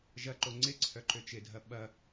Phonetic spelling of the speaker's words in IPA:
ʒ ɐ ǃ o ŋ͡ǀ ɪ ǀʰ œ ǃ ø t͡ʃ ɪ dʱ ɐ ɓ ɐ

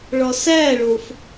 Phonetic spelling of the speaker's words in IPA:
ɭ ɒ s æ ɭ o f

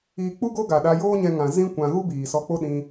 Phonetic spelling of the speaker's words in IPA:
iː˧ k͡p u˦ ɡ o˦ ɡ a˨ ɗ a˧ j oː˦ ɲ ɛ̃˧ ŋ ã˨ z ĩ˦ kʷ ã˧ ɣ u˦ b iː˨ s ɔ˧ k͡p o˦ ɗ ĩ˧

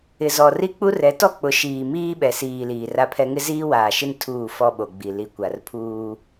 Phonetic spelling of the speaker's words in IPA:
ɪ˨ z ɔ˨ r i˦ k͡p u˦ r ɛ˨˦ t ɔ˦ k͡p ʊ˨˦ ʃ iː˨ m iː˦ ɓ ɛ˨ s iː˨ l iː˨ r a˦ pʰ ɛ˦ ŋ ɪ˦ z iː˦ w aː˨ ʃ ɪ˦ n tʰ uː˦˨ f ɔ˦ ɓ o˨ ɡ͡b i˨ l i˨ kʷ a˨ r pʰ uː˦

